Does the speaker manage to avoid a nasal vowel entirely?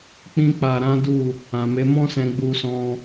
no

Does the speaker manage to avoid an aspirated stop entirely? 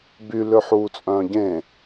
yes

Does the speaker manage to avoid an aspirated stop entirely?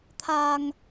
no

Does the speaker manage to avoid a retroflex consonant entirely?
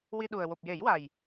yes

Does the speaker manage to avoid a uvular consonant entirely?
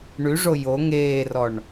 yes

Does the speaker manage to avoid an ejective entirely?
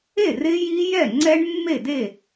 yes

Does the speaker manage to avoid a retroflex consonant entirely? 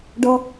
no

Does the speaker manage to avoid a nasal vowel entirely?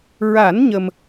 yes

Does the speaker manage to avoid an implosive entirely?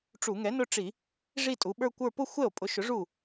no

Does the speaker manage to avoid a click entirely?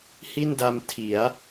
yes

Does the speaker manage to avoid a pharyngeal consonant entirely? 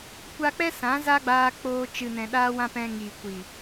yes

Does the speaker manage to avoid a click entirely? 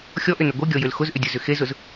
yes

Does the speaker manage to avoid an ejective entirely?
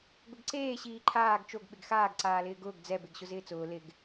yes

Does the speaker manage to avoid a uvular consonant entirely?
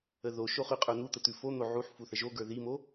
no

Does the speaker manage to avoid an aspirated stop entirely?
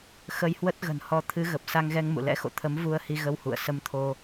no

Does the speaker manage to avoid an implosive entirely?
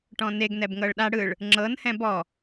no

